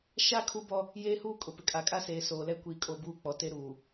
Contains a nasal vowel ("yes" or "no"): no